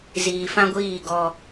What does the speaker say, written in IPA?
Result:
z iː˨ f ã˦ ɡʷ iː˦˨ ɡ ɔ˧

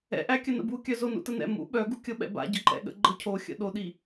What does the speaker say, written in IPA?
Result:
ɛ̰ ʔ æ kʲ ə n ə̰ b u kʲ œ z o n ṵ t ə n ɛ̰ m ṵ ɓ œ ɡ u kʲ ɤ ɓ ɛ̰ b a̰ ɟ ə ǃ ɛ̰ ɠ ə̰ ɡ͡ǃ ɤ cʰ o xʲ ə̰ ɗ o ɗ i

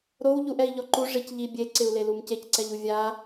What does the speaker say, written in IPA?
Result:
ɾ o w ʎ u ʔ ɛ i̯ ʎ ɔ ǃ u ʐ i c ʎ i bʲ e ǀ ɪ u̯ l e l u m c e c ǀ ɛ ʎ u vʲ a

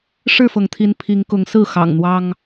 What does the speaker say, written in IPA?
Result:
ʂ ɻ̩˥˨ f ɤ˩ ŋ t̪ʰ i˨˦ n pʰ i˨˦ ŋ k ʊ˨˦ ŋ s ɹ̩˥˨ x ɑ̰˨˩ ŋ n̪ w ɑ˦ ŋ

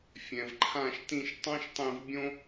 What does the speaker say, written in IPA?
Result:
fʲ ɛ̃˩ v ǃʰ ã˦˨ ʃ t ĩ˦˨ ʃ tˤ õ˥ ʃ tˤ ẽ˦˨ v bʲ õ˥

